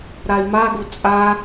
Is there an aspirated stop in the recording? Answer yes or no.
no